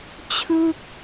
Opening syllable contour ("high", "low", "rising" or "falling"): falling